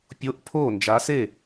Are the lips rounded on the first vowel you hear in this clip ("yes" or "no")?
yes